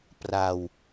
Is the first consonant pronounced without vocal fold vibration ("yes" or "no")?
yes